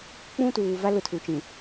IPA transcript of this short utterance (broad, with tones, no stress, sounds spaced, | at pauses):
k͡p ũ˦ t uː˨ v a˦ l ʊ˦ tʰ u˨ t͡ʃ ĩ˨